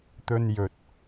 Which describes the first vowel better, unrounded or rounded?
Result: rounded